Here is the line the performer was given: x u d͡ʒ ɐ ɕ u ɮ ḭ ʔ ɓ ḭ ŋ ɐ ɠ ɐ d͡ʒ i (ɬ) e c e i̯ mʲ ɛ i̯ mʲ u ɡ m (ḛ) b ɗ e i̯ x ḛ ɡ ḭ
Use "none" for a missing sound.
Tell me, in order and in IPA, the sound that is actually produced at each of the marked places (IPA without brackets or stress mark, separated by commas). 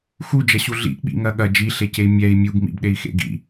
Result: ɬ, ḭ